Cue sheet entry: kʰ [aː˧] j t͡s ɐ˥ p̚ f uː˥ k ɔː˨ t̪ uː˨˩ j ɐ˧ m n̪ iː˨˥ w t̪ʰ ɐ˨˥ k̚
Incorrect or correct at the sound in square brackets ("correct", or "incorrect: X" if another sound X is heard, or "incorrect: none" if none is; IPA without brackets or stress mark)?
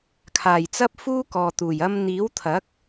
incorrect: aː˨˩